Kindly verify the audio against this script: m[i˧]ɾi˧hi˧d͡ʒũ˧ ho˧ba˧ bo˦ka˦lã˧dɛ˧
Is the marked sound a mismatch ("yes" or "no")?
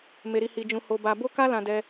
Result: yes